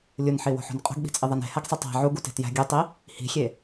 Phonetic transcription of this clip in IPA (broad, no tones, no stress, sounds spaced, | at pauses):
lʲ u n ħ i w o̤ ħ o̤ n qʼ o̤ ɡ ɓ i̤ t͡sʼ i ðˤ æ n e̤ h æ ɡ sˤ i tˤ æ̤ ʕ u ɡ u t e̤ t j æ̤ ɡʲ u tˤ i | h i̤ xʲ e